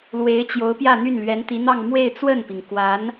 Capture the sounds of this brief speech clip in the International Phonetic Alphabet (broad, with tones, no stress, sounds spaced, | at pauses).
l w e˧˥ ɪ̯ t͡ɕ j o˧˥ ʊ̯ p j ä˥˧ n̪ y˥˩ n l ɥ ɛ˧˥ n t̪ i˧˥ n̪ ɑ˥˧ ŋ m w e˥˧ ɪ̯ t͡s w ə˥˩ n p i˩ ŋ k w a˧˥ n